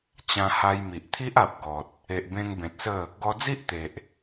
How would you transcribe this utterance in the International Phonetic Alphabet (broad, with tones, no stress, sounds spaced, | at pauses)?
t͡ɕ ã˧ h a˧ j m i˨ ʔ t̪ʰ i˦ ʔ a˨ p̚ ɡ ɔ˨ t̚ | e˨ ʔ b ẽ˧ ŋ b ẽ˨ t̚ s ə˥˧ | ɡ ɔ˧ d͡z i˦ ʔ t̪ e˨ ʔ